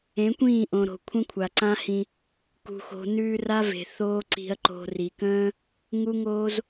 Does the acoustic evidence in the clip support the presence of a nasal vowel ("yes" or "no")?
yes